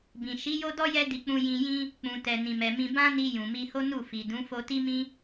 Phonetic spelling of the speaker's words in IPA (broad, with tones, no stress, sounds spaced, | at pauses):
b ĩ˨ ʃ i˨˦ j o˦ d ɔ˦ j ɛ˦ d i˧ k͡p ũ˧ j ĩ˧ j ĩ˦ | k͡p ũ˨ t ɛ˨ n ĩ˨ m ɛ˨ m ĩ˧ b ã˦ n i˧ j ũ˨ m i˧ h o˦ n u˦˨ f i˨ d ũ˨˦ f o˧ t i˦ m ĩ˦